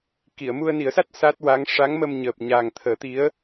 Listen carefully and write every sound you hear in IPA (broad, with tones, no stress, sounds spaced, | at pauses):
k i˨˩˨ ə̯ m u˧ ə̯ n i˨˩˦ ə̯ s a˦˥ t̚ s a˦˥ t̚ w a˧˥ ŋ ʂ a˧˥ ŋ m ə˧ m ɲ əː˨˩ p̚ ɲ a˨˩ ŋ t̪ʰ əː˨˩˦ t̪ i˧˥ ə̯